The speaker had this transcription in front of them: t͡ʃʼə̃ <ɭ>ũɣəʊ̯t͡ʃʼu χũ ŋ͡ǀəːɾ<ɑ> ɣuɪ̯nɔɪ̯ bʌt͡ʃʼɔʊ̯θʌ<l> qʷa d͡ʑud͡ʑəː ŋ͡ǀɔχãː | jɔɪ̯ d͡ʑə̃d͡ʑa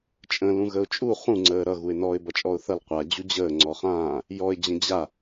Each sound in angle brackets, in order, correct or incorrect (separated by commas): incorrect, incorrect, correct